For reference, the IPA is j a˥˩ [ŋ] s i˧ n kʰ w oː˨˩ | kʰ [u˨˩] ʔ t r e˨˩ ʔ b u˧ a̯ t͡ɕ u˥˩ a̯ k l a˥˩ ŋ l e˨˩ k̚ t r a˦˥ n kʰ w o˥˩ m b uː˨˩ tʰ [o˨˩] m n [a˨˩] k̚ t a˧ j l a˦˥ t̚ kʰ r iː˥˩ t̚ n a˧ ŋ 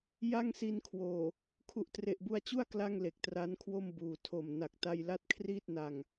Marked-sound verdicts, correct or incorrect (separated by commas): correct, correct, correct, correct